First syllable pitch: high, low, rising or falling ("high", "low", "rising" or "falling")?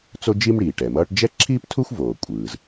high